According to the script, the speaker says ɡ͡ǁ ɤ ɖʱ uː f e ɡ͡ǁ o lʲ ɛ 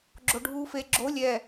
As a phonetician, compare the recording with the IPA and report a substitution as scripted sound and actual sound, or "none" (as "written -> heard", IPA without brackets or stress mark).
ɤ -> o